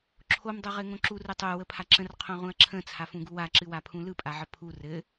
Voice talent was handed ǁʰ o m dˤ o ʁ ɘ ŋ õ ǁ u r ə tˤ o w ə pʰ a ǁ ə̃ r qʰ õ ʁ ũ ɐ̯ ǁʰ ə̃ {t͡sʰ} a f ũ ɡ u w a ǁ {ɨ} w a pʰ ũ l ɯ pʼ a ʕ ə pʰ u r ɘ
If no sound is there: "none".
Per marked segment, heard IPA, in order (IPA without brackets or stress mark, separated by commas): t͡sʰ, ɨ